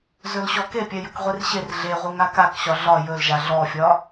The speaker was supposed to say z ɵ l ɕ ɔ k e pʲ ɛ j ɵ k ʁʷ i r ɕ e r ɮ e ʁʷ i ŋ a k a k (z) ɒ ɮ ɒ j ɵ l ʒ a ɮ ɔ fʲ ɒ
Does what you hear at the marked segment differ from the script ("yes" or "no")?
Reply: yes